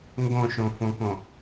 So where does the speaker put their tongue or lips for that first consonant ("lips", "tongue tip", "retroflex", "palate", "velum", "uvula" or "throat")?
velum